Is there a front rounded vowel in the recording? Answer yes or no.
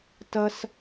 no